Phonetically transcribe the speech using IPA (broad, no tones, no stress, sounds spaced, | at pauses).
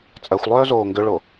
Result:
t͡sʼ ɜ xʷ lˠ œː z oː ŋ ɡ ʏ ɭ o